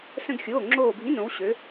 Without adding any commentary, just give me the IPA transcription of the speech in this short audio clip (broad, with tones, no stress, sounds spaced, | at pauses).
s ə̃˥ ɡ xʲ oː˧˥˧ ŋ͡ǁ oː˦˨ bʱ ĩ˧˥˧ n õ˨˦ w ɕ ø˨˦